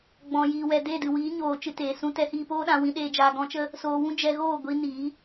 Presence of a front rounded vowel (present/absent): absent